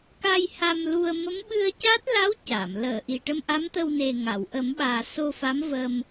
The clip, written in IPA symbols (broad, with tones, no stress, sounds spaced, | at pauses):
k a˧ j h a˧ m l u˧ ə̯ m ə˧˥ m ɓ ɨ˧ ə̯ c a˦˥ t̚ l a˧˥ w c a˨˩˨ m l əː˨˩˨ ʔ i˨˩ ʈ ə˧ m ʔ a˧˥ m t̪ ə˧ w n e˨˩ ŋ a˨˩˨ w ʔ ə˨˩˦ m ɓ aː˨˩ s o˧ f a˧˥ m v ə˧ m